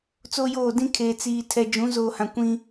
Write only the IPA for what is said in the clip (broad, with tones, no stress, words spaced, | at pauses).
t͡so˦joː˦˨ dĩ˦kʰeː˨ t͡siː˨ tʰɛ˨d͡ʒũ˨˦ zoː˨hã˨kʷĩ˦